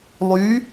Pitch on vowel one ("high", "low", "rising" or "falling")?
rising